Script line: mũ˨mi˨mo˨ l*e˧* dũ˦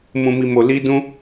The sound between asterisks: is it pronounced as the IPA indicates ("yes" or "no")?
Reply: no